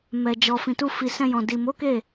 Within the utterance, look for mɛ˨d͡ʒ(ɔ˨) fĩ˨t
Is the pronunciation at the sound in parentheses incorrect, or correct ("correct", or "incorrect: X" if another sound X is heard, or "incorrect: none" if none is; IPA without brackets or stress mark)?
correct